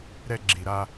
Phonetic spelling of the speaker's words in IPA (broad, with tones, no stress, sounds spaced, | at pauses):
ɾ ɛ˦ ɡ͡ǁ i˨ ɾ a˦